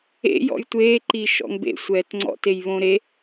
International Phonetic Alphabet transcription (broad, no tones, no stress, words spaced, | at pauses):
ḛ jɔ̰jtʷeː ǃiʃɔ̰ŋbḛ sʷɛːtŋ͡ǀɔ̰ tejβõɾe